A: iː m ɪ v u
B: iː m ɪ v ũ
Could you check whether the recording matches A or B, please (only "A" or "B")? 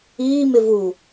A